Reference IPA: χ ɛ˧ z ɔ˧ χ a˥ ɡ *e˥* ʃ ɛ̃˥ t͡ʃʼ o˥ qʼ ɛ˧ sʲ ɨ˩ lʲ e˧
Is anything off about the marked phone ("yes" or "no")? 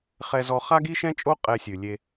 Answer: yes